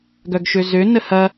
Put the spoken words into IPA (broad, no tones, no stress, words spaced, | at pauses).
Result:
ɡœɡʃøzø nəhɐ